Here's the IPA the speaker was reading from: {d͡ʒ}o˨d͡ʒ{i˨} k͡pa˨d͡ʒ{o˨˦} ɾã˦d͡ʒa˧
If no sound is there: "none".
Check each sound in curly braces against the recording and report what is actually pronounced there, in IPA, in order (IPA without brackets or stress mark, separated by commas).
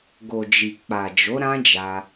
ɡ, i˨, o˨˦